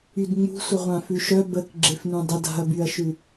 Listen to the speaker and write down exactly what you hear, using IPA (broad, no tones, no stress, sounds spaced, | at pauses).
y d ŋ͡m ṳ sʷ ə ʁʷ ã f ʉ ʃ œ b ə k ɡ͡ǁ e f n ũ dˤ ə d a̤ ɐ̯ b y ɐ̯ ʃ ʉ